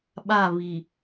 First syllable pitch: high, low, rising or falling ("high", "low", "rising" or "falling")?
falling